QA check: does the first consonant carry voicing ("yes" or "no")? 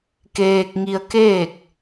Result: no